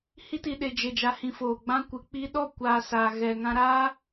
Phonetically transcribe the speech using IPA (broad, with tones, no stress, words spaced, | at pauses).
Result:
hi˧ti˨ɗe˨ d͡ʒe˨d͡ʒa˨hĩ˨ foː˨ɡ͡bã˦kʷɨ˨ k͡pi˧ɗɔ˦˨ kʷaː˧saː˨ ɣɛ˨ŋã˧ ɾaː˦